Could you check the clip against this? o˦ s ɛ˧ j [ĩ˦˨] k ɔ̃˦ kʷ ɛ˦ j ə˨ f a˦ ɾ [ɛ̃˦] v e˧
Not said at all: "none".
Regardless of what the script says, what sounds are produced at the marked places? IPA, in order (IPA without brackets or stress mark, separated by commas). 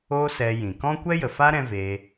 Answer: ĩ˨, ɛ̃˦